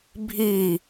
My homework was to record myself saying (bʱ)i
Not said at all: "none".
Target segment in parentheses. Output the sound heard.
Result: bʱ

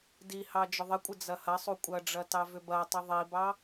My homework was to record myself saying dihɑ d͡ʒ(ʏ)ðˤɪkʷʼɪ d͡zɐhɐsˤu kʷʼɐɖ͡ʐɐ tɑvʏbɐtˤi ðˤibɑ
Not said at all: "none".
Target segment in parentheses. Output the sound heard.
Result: ʏ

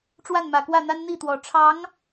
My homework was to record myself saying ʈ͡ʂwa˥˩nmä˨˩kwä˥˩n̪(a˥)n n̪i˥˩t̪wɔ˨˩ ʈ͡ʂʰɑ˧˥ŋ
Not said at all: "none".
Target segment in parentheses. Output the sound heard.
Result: a˥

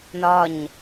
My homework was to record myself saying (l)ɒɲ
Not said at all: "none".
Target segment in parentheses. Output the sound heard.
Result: n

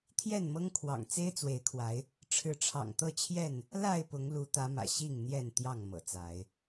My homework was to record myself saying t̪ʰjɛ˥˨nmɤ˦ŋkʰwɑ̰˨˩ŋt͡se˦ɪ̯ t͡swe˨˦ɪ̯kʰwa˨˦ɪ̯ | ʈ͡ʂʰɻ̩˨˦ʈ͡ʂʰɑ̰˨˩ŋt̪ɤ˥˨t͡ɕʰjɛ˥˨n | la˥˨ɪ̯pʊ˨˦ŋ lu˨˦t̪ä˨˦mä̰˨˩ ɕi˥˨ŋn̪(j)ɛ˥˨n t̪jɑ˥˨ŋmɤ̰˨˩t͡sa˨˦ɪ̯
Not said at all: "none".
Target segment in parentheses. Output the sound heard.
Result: j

